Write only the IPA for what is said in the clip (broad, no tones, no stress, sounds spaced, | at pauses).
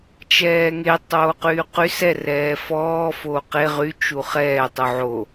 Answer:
t͡ʃ ɛː ŋ e tˤ oː q yː q y s ɛ r ɛː f ɔː f oː q e ʁ y t͡ʃ u χ ɛː tˤ u ʕ o